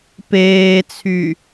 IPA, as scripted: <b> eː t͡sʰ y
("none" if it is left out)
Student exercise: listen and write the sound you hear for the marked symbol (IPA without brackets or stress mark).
p